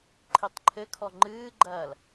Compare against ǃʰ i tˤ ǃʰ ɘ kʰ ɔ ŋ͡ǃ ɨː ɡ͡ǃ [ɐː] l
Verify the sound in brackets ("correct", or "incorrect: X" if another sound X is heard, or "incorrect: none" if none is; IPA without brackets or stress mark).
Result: correct